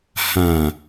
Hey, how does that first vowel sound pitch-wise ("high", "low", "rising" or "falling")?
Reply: low